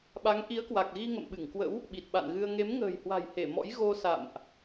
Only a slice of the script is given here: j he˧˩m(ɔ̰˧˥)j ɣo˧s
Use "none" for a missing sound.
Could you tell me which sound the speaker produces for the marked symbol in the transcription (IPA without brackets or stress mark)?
ɔ̰˧˥